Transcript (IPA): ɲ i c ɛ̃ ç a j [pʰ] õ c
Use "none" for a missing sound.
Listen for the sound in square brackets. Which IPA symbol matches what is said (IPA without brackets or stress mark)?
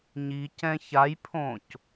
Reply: pʰ